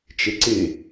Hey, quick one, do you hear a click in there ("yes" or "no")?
yes